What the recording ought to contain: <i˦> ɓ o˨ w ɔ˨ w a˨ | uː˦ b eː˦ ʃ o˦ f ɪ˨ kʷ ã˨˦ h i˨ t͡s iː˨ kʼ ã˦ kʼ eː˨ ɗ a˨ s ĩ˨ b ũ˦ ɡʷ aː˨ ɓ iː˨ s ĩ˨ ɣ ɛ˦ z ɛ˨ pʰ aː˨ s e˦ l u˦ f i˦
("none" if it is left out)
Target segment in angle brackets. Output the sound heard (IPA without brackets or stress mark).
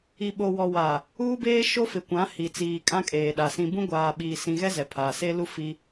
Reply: i˨